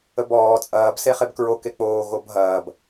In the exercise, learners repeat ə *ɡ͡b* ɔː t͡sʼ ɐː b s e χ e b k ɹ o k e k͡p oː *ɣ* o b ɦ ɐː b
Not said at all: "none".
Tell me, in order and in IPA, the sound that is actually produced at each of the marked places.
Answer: b, ɣ

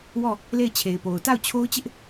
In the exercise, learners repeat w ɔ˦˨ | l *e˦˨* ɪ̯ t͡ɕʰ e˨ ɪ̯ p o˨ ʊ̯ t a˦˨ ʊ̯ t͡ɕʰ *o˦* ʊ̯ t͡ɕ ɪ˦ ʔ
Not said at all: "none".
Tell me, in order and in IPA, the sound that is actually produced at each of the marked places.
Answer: e˦˨, o˦

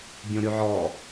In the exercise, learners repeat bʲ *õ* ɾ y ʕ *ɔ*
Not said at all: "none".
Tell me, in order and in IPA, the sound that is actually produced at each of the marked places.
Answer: õ, ɔ

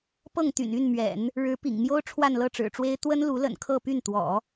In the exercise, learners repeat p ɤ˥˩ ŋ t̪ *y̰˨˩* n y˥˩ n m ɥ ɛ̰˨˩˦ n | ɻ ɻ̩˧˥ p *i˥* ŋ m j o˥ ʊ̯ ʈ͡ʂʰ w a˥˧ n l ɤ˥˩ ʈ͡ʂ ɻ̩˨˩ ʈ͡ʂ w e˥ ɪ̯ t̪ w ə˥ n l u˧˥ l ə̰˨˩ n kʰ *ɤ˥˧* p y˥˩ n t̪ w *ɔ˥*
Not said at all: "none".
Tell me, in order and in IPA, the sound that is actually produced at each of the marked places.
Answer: y̰˨˩, ḭ˨˩, ɤ˥˧, ɔ̰˨˩˦

